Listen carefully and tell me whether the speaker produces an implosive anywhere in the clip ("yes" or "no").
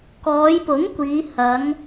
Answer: no